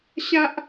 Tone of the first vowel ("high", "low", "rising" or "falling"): high